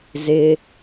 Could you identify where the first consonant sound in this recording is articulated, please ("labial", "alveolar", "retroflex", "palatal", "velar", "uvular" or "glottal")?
alveolar